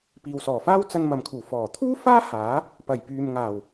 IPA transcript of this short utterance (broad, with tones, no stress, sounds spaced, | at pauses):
p iː˨ w s ɔː˨˩ f aː˥ w t͡s ɐ˧ n m ɐ˨ m kʰ uː˨˩ f ɔː˨˩ t̪ʰ uː˥ f aː˥ h aː˨˥ | p ɐ˨˩ j p yː˨ m ŋ aː˨˩ w